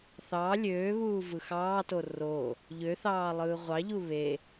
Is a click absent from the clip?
yes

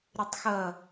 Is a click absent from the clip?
yes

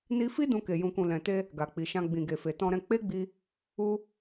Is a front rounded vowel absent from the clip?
yes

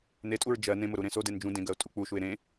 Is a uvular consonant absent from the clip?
yes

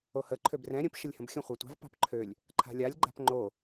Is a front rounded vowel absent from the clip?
no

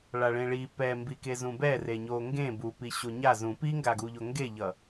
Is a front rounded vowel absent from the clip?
yes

